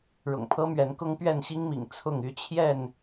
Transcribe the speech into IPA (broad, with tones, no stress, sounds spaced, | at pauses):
ɻ ʊ̰˨˩ ŋ pʰ ɤ˦ m ɥ ɛ˨˦ n k ʊ˦ ŋ p ɥ ɛ˥˨ n ɕ i˦ ŋ m ḭ˨˩ ŋ t͡sʰ ʊ˥˨ ŋ y˦ t͡ɕʰ j ɛ˥˨ n